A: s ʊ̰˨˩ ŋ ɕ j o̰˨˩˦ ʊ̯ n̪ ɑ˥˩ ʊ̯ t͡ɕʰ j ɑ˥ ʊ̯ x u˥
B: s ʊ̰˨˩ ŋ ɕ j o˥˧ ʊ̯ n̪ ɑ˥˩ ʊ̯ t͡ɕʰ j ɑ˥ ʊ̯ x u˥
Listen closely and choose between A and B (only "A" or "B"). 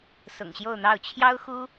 B